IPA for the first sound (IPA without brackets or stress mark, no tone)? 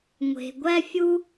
ŋʷ